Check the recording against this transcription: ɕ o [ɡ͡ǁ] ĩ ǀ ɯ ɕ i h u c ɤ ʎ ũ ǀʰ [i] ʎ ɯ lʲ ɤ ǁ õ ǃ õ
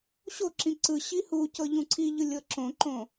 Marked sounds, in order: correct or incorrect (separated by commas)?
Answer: incorrect, correct